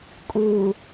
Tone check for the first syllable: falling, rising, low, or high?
low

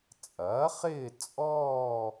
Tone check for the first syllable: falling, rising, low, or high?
rising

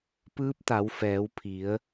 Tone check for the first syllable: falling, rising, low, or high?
rising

